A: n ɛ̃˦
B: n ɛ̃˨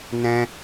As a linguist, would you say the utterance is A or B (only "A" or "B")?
A